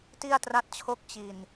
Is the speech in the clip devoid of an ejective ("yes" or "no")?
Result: yes